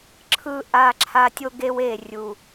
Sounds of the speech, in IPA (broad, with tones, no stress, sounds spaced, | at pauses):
ǁʰ ɯ˦ ʔ a˦ ǁʰ a˦ tʲ o˦ ɡ e˦ w e˦˨ rʲ u˨